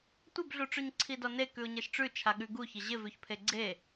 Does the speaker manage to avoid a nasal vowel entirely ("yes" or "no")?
yes